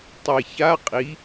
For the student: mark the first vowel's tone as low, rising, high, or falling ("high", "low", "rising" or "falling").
low